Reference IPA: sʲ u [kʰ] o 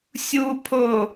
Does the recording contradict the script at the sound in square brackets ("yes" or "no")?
yes